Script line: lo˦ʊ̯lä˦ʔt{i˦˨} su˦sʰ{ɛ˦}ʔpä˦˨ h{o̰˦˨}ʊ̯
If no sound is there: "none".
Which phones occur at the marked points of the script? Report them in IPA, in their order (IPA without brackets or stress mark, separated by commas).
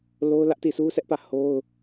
i˦˨, ɛ˦, o˦